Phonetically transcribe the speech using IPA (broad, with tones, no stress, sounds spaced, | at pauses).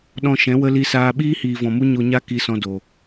ɗ ɔ̃˧ ʃ ɛ̃˨˦ w ə˦ l i˧ s aː˧ ɓ iː˦ h iː˨ v ɔ̃˨ m u˦ ɲ o˧ ɲ a˦ k i˧ s ɔ̃˧ d o˨